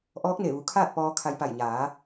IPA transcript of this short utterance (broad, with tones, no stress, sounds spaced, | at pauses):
ʔ ɔː˧˥ k̚ n e˧˩ ʋ u˩˧ kʰ aː˥˨ t̚ p ɔː˧ kʰ a˧ j p a˧˩ j ɲ aː˩˧